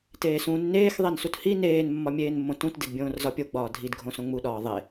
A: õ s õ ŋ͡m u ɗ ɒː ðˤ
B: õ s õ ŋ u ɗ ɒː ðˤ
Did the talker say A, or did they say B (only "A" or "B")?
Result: A